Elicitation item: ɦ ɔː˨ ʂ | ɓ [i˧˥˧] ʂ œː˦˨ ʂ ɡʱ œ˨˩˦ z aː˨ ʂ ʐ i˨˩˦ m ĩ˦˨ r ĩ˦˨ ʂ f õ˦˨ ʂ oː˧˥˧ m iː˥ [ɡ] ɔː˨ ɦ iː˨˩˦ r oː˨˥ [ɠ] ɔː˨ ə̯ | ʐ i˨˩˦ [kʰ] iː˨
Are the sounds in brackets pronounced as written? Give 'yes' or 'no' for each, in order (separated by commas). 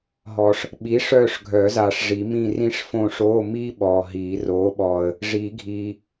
no, no, no, no